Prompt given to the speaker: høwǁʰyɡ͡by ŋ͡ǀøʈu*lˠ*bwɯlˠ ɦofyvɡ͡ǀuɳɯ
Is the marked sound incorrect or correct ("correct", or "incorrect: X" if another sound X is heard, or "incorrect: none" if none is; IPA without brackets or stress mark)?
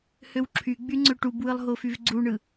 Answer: incorrect: none